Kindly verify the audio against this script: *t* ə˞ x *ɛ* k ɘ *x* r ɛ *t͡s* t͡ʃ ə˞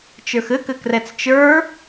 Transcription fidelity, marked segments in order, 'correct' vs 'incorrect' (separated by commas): incorrect, incorrect, incorrect, correct